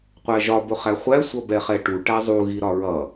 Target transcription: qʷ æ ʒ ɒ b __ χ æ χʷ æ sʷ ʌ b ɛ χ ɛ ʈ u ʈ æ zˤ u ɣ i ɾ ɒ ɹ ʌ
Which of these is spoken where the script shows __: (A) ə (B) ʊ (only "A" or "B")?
B